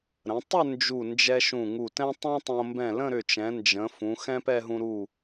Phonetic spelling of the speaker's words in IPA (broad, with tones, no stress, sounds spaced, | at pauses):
ɾ ə̃˩˧ tˤ ʏ˥˧ n d͡ʒ u˧˩ n d͡ʒ ɛ˧ ʃ ũ˧˩ ŋ u˧˩ t ɛ̃˥ tˤ õ˥ tˤ õ˧ m b ɛ̃˧˩ l ə̃˥˧ ɾ ʏ˧˩ t͡ʃ ɛ̃˩˧ n d͡ʒ ə̃˩˧ f ũ˩˧ x ɛ̃˥ p ɛ˥˧ ɦ ũ˧ ɾ u˧˩